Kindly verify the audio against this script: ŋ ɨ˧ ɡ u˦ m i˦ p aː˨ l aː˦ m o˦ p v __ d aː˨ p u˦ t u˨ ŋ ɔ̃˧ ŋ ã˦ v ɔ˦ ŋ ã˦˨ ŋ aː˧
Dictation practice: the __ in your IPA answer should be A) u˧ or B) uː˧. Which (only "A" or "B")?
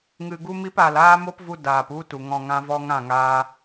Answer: A